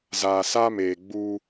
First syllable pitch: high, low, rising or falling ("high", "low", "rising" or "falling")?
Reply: low